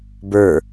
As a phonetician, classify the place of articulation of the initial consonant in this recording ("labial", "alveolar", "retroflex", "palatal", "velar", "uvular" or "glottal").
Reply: labial